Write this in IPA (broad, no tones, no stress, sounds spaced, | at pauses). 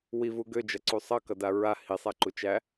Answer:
w i v u ɡ ø d͡ʒ ʌ ǀ u sˤ ʌ k ʌ d a ɹ a h i sˤ æ ǃ u t͡ʃ æ